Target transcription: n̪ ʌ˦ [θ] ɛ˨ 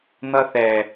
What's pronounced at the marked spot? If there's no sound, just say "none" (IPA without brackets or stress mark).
θ